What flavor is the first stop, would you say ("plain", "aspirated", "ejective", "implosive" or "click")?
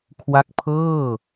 aspirated